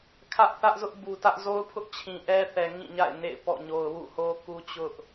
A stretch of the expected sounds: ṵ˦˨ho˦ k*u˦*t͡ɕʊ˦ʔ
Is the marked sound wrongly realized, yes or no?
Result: no